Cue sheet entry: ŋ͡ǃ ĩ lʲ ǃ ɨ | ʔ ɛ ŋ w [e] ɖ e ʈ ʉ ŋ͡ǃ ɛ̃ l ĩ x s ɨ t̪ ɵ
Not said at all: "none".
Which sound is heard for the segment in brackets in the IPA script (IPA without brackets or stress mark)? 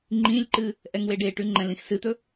e